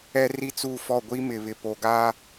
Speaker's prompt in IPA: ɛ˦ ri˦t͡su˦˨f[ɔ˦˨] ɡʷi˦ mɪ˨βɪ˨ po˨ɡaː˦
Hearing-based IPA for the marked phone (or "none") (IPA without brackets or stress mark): ɔ˦˨